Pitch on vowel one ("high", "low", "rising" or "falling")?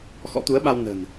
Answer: rising